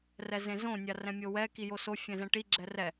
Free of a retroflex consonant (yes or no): no